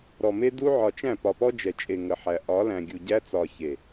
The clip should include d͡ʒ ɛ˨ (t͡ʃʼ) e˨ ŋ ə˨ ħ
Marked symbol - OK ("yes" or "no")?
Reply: yes